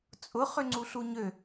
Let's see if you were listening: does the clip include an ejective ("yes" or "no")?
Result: yes